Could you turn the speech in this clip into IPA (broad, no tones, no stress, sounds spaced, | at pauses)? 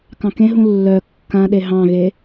k ɑ̃ k ẽ ɦ ũ lː œ kː ã ɗ e ɦ ɑ̃ ɣ e